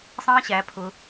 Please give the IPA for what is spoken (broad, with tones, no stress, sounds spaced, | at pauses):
sˤ ɑ̃˥ ɕ æ˩˧ pʰ ʊ˩˧